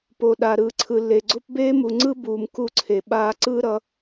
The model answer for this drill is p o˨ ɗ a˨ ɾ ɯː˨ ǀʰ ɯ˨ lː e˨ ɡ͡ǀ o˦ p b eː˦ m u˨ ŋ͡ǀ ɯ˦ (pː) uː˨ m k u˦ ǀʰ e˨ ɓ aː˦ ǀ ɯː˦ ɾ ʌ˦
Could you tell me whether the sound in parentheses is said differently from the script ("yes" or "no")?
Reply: yes